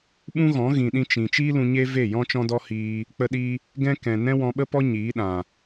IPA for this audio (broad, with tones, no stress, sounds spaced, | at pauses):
ɓ ũ˦ ɣ ɔ̃˨˦ ɣ ĩ˨ ɗ ĩ˧ t͡ʃ ĩ˨ t͡ʃ iː˦ l ũ˧ ɲ e˦ v e˦˨ j ɔ̃˦ t͡ʃ ɔ̃˦ d ɔ˦ h iː˧ | k͡p ə˧ ɗ i˧ | ɡ ɛ̃˦ k ɛ̃˨ n ɛ̃˦ w ɔ̃˧ ɓ ə˦ p ɔ˦ ɲ iː˨˦ ɗ ã˨